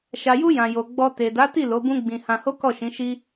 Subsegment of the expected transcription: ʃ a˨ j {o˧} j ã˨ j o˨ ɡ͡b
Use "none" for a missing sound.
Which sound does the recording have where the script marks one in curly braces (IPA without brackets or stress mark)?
u˧